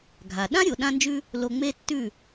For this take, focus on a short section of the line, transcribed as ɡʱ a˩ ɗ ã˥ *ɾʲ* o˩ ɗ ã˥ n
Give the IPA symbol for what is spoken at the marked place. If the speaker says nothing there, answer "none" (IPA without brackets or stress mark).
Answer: ɾʲ